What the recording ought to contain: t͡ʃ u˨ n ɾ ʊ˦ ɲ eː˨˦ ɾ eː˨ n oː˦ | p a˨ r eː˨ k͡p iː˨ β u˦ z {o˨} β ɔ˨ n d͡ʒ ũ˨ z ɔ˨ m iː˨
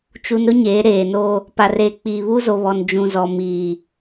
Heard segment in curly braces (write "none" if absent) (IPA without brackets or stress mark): o˨